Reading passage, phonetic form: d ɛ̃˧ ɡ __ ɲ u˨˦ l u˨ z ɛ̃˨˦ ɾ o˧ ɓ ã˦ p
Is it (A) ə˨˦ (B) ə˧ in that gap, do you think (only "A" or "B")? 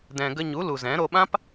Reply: B